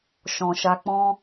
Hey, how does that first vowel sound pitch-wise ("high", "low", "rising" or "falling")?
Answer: low